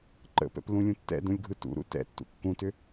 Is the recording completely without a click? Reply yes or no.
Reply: no